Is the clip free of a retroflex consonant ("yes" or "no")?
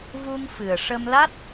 no